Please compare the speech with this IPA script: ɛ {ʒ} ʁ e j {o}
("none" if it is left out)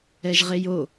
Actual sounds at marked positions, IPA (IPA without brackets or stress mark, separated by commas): ʒ, o